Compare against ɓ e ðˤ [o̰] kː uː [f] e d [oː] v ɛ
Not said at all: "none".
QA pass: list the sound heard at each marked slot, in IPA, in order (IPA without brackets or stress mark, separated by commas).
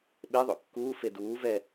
o̰, f, uː